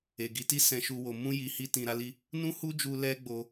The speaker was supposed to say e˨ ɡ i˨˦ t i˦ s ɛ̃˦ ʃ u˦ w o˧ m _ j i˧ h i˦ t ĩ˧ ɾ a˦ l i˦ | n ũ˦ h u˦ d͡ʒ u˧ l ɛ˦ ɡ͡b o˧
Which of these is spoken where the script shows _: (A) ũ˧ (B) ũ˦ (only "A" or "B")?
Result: B